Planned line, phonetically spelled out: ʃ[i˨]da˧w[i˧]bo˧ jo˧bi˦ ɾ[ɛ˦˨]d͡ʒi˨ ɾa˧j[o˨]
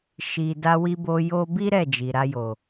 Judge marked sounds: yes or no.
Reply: yes, yes, yes, yes

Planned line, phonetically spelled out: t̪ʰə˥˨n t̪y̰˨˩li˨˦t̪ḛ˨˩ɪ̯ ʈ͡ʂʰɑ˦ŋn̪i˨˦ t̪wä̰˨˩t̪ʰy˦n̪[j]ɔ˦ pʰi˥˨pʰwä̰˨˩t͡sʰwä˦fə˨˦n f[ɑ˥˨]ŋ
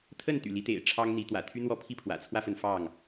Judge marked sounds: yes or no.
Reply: no, yes

